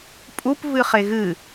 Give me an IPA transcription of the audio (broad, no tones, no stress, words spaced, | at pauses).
pʼup vɨχeɣɨ